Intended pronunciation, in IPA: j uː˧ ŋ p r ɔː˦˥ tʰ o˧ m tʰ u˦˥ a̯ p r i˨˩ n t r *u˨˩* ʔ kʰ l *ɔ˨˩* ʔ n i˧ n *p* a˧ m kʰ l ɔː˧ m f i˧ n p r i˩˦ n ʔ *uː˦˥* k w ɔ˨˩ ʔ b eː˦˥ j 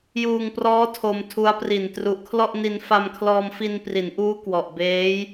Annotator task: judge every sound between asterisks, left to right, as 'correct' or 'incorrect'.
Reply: correct, incorrect, incorrect, correct

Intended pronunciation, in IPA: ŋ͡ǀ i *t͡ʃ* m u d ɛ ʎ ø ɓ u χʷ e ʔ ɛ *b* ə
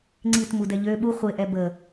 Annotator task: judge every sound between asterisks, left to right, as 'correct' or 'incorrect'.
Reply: incorrect, correct

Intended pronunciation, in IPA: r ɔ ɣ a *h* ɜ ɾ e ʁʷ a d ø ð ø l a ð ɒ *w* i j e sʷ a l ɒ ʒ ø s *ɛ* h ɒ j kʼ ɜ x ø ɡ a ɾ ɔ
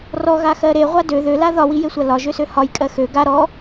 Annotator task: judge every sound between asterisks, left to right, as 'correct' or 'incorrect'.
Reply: incorrect, correct, incorrect

